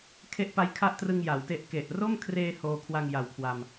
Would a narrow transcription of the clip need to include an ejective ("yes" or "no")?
no